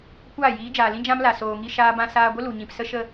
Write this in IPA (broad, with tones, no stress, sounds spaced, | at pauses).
kʷ aː˦˨ j iː˨˦ d͡ʒ aː˨ l ĩ˦ d͡ʒ ã˦ m l a˨ s oː˨ ŋ i˦ ʃ aː˦ b ã˦ s aː˧ ɡʷ ə˦ l u˨ ɲ ĩ˨ p s ə˦ ʃ ə˦